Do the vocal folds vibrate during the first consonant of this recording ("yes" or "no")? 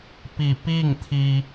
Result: no